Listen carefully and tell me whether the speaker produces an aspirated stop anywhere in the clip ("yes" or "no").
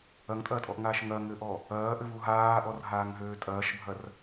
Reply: no